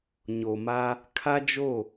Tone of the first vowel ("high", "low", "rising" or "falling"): low